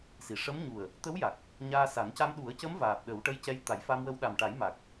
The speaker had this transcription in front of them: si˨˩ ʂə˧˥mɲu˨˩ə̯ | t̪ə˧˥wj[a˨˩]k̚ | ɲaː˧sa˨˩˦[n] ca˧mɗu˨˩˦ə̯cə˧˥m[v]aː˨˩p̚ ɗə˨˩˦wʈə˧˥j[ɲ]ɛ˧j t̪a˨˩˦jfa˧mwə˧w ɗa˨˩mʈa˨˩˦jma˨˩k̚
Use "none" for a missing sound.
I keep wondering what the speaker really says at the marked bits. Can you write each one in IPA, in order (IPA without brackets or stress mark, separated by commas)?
a˨˩, n, v, c